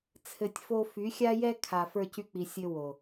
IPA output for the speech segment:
t͡sʰɘ˧tʲfo˦ fy˨˦xʲa˦jɛ˦ kʰa˨fə˞˧cy˧k͡pi˨ sʲɘ˧wo˨

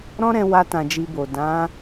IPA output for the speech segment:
ɾɔ̃˦ɾɛ̃˧ wa˧tã˨ d͡ʒi˧bo˨ dã˨˦

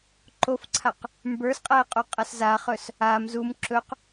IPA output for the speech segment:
ǃofǀʰaq | mbə˞sqʼɛ qʼoqʼɐszaχɵs | am zum ǁɵq

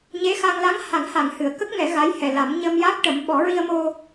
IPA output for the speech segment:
ɲe˧˥xa˧ŋ la˧˥ŋha˨˩˦ŋ ha˨˩˨ŋhɨ˨˩˨ə̯ kə˦˥k̚ŋɛ˨˩˦ ɣa˧˥j hɛ˨˩la˨˩˦m ɲə˧mja˦˥k̚ʈə˨˩˦m ɓɔ˨˩˦ɹi˧ə̯mo˧

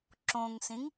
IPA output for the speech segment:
ǁõŋsĩŋ

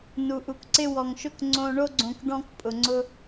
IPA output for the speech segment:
nu˩ʔu˩kǀɪ˧ wɔ˩ŋʃʊ˧k ŋ͡ǀõ˧ ɳo˧ɡ͡ǀõ˩k ɖɔ̃˧k pʼʊ˩ŋ͡ǀʊ˧

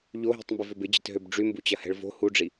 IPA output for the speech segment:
ʎoɦi̤tˤmbɪvøb ɪd͡ʑɪtɦøb ɖ͡ʐymbut͡ɕɐhɛ̤ɭ vo̤ huɖ͡ʐi

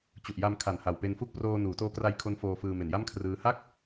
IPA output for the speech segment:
t͡ɕu˨˩ʔ ja˧m kʰa˨˩n ha˨˩wpe˧nfu˥˩k̚ proː˧nuː˩˦toː˦˥kra˧j kʰo˦˥nfoː˧fɯː˧ me˨˩nja˥˩mkʰrɯː˦˥ ha˥˩k̚

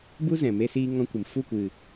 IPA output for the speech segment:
bu˦zɛ̃˨ me˦siː˦ŋɔ̃˦kʷɨ˨m fu˦˨kʷɨ˨

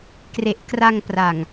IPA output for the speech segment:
kre˨˩ʔkra˧ŋ pra˨˩ŋ

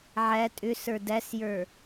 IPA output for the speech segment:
ʕæ tʼʏsə˞ dæsjə˞

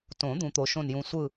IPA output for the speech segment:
tõ˨˩˦ d̪ũ˨˦t̪o˨˦ʃõ˦˨njũ˦˨ sʷɯ˦˨

